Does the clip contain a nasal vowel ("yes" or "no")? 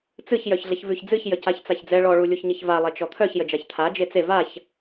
no